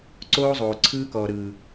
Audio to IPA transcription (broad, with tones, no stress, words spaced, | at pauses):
ǀoː˦zˤoː˨ ǀʰɯː˦kɔː˨ɾɯː˨